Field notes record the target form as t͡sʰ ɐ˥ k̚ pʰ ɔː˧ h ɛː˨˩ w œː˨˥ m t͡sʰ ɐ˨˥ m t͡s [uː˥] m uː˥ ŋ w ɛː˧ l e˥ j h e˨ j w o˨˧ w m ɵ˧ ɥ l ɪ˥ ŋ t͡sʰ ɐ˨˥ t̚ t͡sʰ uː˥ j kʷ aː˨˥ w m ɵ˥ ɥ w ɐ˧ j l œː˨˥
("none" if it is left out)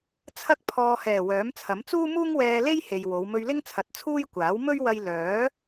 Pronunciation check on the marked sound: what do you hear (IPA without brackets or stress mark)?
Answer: uː˥